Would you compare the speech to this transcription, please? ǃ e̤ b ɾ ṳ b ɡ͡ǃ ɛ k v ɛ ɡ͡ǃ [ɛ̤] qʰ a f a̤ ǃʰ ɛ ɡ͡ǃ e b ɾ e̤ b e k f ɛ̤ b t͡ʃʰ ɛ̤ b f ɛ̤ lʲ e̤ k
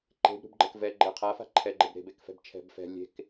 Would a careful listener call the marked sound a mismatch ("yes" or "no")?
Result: yes